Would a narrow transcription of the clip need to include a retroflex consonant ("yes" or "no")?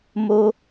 no